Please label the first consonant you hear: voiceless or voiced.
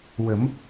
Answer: voiced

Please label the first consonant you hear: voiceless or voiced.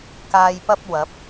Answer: voiceless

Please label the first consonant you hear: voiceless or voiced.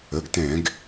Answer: voiced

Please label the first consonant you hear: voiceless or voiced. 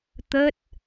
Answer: voiceless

